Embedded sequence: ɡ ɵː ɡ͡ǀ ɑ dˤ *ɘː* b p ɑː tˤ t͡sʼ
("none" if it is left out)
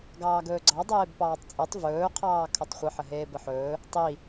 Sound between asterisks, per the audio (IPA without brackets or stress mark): eː